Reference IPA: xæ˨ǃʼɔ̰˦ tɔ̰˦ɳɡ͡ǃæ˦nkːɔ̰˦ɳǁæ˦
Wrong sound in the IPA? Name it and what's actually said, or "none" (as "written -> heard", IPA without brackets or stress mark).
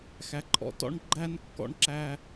none